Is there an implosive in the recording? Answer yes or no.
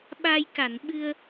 yes